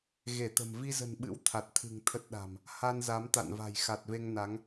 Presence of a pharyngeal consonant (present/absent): absent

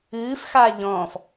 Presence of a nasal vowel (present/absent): present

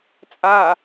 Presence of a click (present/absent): absent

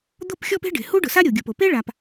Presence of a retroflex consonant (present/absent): present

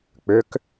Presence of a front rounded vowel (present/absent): present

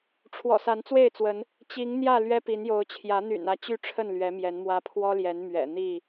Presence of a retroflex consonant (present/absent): present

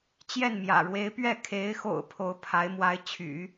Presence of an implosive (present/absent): absent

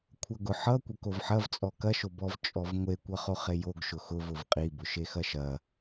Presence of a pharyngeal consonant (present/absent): present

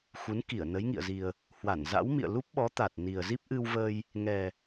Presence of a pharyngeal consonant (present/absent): absent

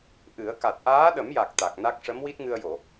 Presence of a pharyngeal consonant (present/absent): absent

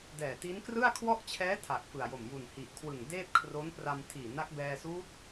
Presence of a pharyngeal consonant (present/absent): absent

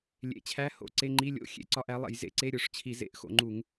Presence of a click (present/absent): present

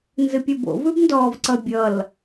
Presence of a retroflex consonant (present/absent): absent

